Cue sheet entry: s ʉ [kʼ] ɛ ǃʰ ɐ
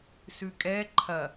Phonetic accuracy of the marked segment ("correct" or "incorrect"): correct